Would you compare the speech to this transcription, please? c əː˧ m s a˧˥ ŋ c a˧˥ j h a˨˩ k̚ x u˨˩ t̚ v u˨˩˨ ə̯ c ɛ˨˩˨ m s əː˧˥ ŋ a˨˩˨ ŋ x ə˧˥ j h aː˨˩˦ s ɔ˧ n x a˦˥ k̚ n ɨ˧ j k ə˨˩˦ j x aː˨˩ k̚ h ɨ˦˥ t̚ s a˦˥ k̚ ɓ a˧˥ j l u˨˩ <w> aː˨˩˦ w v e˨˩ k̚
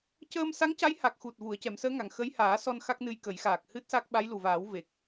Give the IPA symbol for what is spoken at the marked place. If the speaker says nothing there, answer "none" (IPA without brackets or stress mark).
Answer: v